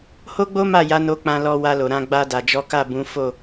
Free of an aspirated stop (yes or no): yes